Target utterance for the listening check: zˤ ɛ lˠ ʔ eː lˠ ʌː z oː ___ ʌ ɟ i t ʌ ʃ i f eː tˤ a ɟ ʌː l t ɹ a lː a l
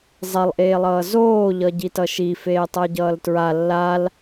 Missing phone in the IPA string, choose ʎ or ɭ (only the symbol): ʎ